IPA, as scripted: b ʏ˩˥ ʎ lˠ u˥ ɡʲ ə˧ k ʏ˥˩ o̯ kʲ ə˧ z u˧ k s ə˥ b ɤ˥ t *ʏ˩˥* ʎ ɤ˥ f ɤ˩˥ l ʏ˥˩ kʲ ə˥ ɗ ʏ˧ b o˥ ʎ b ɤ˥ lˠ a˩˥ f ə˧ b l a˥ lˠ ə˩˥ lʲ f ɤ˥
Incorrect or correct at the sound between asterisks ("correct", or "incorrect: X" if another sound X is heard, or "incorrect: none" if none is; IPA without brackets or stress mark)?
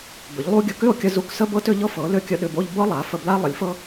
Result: correct